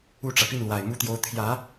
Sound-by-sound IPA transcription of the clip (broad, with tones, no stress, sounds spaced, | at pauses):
u˥˩ ʈ͡ʂ ä˩ p i˥˩ n l w a˨˩ ɪ̯ m u˥ t̪ j o˥ ʊ̯ t̪ʰ j ä˧˥